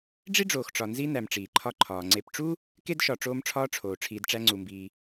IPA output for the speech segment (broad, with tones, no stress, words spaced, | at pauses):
ɖ͡ʐi˥ ɖ͡ʐoː˨xʈ͡ʂɒ˨ nzi˦ næ˨mʈ͡ʂiː˩ǃʰɒ˦ ǃʰɒː˩ŋ͡ǀe˨pʈ͡ʂu˥ | ke˥dʃɒ˨ ʈ͡ʂoː˦mʈ͡ʂʰɒː˦ ʈ͡ʂʰoː˩ ʈ͡ʂʰiː˨dʈ͡ʂæ˦ŋ͡ǀu˩mbiː˨